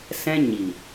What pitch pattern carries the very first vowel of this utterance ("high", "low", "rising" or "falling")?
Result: high